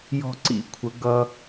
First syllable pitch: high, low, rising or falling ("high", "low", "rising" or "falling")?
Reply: high